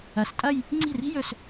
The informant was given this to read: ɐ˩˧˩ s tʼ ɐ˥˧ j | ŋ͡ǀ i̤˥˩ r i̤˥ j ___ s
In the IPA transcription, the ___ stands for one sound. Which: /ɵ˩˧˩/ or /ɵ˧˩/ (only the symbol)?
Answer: ɵ˧˩